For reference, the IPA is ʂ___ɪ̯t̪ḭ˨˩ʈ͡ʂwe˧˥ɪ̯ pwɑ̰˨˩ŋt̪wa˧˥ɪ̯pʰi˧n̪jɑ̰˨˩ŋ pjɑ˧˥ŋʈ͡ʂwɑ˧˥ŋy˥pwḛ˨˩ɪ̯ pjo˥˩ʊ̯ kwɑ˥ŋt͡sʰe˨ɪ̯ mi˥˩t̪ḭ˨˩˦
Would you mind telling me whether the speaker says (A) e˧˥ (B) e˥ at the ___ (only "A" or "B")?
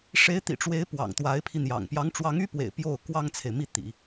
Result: A